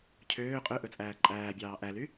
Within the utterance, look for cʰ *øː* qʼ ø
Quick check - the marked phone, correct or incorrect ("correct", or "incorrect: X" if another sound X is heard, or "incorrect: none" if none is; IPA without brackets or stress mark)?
correct